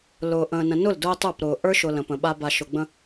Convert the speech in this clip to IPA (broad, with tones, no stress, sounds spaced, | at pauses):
l ʊː˨ ʔ ə̃ː˨ n ə̃˨ n ʊ˦˨ l d ʊː˦ tˤ ə˞˦˨ p ɾ ʊː˨ ʔ ə˞˦ ʃ ʊ˨ l ə̃˨ p ə̃˨ ɓ a˦ b a˨ ʃ ʊ˨ ɡ͡b ə̃˦